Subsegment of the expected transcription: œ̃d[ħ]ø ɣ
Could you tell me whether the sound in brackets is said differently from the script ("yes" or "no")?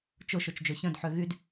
no